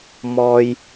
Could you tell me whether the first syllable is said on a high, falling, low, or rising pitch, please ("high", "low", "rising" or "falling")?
high